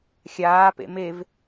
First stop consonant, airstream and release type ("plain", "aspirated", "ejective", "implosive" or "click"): plain